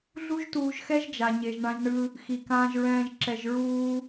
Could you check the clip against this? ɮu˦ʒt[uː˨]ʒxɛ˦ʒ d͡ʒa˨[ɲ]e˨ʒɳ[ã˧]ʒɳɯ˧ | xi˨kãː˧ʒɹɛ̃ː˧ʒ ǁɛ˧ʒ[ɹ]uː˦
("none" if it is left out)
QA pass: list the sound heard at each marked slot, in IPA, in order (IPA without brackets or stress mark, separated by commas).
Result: uː˧, ɲ, ã˧, ɹ